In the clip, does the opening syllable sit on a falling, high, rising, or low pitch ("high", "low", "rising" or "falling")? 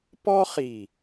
high